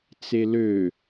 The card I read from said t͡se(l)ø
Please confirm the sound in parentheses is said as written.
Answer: yes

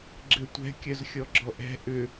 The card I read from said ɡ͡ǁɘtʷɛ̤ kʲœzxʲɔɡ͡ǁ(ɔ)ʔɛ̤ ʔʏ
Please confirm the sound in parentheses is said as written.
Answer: yes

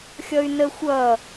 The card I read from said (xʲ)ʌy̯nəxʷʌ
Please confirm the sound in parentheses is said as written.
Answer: yes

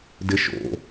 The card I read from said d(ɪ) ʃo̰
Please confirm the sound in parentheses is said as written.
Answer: yes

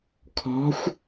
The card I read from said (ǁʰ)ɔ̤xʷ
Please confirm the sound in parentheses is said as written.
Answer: no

